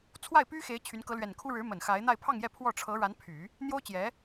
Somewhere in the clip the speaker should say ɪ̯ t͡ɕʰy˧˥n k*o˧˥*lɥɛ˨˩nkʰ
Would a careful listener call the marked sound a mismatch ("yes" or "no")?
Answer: yes